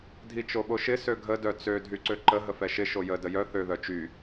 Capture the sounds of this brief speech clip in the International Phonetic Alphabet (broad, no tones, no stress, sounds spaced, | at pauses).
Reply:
dʱ i t͡ʃ o ɓ o ʃ ɪ s ø ɡʱ ə d œ t͡s ø dʱ y ǀ ø ǃ ə ɦ ə f ɛ ʃ ɪ ʃ o j ə d ə j œ θ ø ð œ t͡ʃ y